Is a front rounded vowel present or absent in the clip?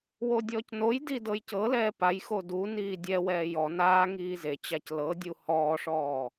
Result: absent